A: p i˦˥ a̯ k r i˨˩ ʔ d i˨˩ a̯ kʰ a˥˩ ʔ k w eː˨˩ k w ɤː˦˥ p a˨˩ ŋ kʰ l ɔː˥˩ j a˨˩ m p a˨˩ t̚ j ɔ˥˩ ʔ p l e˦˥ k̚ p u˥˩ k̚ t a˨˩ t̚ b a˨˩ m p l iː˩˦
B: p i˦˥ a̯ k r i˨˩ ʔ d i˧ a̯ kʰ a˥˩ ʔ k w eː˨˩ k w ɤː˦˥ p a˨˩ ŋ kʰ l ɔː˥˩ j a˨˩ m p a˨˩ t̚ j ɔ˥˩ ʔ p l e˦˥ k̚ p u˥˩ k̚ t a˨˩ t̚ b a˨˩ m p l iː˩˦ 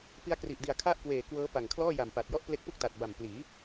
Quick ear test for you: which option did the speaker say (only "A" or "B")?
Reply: A